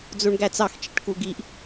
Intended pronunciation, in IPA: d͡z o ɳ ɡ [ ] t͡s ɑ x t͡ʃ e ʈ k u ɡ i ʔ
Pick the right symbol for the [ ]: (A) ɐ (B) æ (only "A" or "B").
B